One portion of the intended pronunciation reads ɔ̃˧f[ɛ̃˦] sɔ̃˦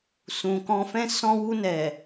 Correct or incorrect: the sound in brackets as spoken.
correct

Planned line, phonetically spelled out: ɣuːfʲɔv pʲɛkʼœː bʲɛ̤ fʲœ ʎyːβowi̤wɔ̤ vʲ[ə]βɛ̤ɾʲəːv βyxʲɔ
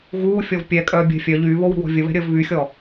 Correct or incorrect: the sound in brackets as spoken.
correct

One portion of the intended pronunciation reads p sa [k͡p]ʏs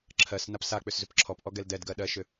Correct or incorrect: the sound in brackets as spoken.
correct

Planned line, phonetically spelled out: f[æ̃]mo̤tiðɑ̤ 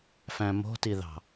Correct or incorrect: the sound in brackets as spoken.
correct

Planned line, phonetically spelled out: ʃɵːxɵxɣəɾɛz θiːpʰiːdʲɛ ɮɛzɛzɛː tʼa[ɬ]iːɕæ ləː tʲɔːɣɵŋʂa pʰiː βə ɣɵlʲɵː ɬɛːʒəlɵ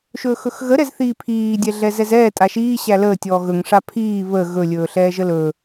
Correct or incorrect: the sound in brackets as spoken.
incorrect: ʃ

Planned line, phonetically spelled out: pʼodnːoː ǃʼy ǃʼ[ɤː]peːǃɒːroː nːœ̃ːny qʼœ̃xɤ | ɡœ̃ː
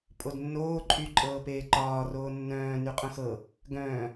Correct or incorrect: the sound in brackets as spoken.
correct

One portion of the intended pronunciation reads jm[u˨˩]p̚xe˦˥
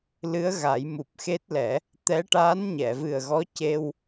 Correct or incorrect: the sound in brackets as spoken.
correct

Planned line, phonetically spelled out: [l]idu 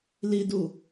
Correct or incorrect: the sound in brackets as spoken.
correct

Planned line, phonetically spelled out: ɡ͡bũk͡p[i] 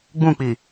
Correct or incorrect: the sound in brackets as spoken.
correct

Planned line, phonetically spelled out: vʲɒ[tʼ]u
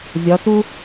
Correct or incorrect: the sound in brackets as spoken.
incorrect: t̪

